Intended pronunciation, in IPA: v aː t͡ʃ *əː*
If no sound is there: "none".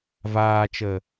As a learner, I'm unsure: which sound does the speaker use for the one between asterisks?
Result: əː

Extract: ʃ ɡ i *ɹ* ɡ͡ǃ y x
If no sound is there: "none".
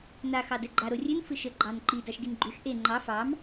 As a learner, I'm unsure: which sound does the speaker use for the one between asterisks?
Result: n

